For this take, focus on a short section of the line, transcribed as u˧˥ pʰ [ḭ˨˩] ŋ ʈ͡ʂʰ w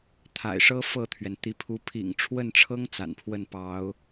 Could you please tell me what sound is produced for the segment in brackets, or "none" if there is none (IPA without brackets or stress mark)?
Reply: ḭ˨˩